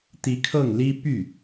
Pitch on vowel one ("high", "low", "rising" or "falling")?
rising